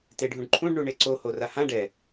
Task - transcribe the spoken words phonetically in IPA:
t e ɖʱ ũ ɖ ǃʰ ũ ɖ ɳ u ɳ e ǀ o h o r a h ã ɖ ɛ

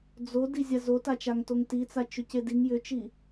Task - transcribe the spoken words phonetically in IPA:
d͡z o d i zʲ a z o t a t͡ʃ a ŋ t o ŋ t i t͡s a t͡ʃ ʏ c e d i ŋ j ʏ t͡ʃ i

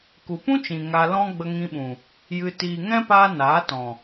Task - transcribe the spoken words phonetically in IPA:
k u˨ p ũ˦ t͡ʃ ĩ˨ ŋ a˧ l ɔ̃˦ ɡ͡b ə˧ ŋ ĩ˧ ɓ ũ˨ | j ɨ˧ t iː˨ ŋ ɛ̃˦ p aː˦ n aː˨˦ t ɔ̃˨

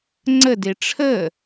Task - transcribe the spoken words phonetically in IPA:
ŋ͡ǀ ə d e ʈ͡ʂʰ ə

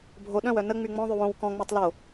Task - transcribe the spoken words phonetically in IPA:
bʱ o ɗ œ̃ w œ n ə ŋ͡m y ŋ͡m ɔ̃ ðˤ y w õ w k ɔ̃ ŋ͡m e tˤ l o

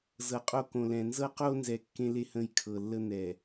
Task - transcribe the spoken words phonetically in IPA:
z ɤ˨ qʼ o˦ k õ˨ l ɛ̃˨ n z ɤ˦ q o˦ n z ɛ˨ kː ẽ˦ l e˦ h ə̃˦˨ j kʰ ɤ˨ lː ə˦ n̪ ɛ˨

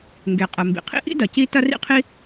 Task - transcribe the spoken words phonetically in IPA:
ŋ ɡ e˩ qʼ ɐ˩ m b ḭ˩ qʰ ḭ˥ ʔ ḭ˥ d ɐ˩ c i˥ t ɐ˥ r ḭ˥ qʰ i˥

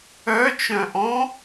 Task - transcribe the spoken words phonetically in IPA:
œ t͡ʃ œ̃ ʔ ɔ̃

